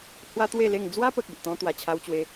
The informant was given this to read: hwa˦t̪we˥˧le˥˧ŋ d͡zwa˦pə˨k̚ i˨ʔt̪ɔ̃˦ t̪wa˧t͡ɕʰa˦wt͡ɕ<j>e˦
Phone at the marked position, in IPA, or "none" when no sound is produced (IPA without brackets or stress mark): w